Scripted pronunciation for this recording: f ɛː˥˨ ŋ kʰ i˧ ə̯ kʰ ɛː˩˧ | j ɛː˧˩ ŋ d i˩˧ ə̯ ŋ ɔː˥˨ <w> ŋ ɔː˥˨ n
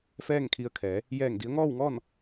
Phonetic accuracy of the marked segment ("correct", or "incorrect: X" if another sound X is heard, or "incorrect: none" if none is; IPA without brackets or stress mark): correct